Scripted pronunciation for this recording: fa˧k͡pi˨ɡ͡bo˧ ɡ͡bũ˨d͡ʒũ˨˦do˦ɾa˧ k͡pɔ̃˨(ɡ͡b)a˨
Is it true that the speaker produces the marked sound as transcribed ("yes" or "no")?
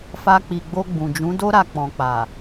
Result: no